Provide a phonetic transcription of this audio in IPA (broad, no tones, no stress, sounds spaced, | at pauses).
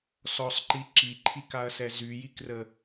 s ɔ sˤ ǃ i ǁ i ǃʰ i k a ɐ̯ s ɛ z y j i k r ə